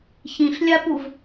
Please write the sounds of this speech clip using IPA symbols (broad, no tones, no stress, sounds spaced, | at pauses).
ç ĩ ɬ lʲ a p u v